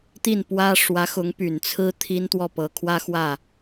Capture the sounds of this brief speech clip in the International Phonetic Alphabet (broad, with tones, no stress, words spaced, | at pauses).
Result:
t̪i˥˩npwä˥ ʂwä˧˥xʊ˧˥ŋ py˨˩nt͡sʰɹ̩˥ t̪ʰi˥n t̪wɔ˥˩pɤ˧˥kʰwä˥xwä˥˩